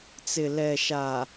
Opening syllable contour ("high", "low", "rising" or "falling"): low